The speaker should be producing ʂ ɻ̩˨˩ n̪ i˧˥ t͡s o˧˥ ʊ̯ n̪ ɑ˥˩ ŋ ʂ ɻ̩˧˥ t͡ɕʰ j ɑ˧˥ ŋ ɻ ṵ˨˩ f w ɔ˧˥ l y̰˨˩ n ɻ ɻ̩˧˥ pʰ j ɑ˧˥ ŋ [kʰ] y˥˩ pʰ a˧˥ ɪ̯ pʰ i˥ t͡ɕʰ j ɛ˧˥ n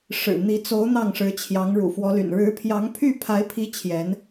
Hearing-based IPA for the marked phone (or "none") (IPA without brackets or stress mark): pʰ